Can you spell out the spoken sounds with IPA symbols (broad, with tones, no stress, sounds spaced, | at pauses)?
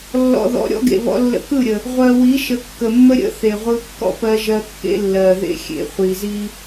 lː ɔ̰˨ ð ɔ̰˨ ɾʲ ɔ̰˦ ɡ ḛ˨ β ɔ̰˦ lː ə̰˦ k ɯ˦˨ ɾʲ ə˨ | ʁʷ ɜ˨ w i˨˦ ʃ ə˨˦ kː ə˨ mː ə˦ ɾʲ ə̰˦ θ e˨ ʁʷ ɯ˦ kː ɔ̰˦ p ɜ˦ ʒ ɜ˦ kː ḛ˦ lː ɜ˨ ð ḛ˦ xʲ ḛ˨ χʷ i˨ z i˦